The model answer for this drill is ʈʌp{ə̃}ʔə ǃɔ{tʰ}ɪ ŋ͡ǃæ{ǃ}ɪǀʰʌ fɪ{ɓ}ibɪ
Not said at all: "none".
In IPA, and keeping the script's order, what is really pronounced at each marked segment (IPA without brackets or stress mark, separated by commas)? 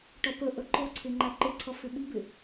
ə, ǀʰ, ǃ, ɓ